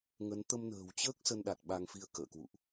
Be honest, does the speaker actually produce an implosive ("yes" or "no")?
yes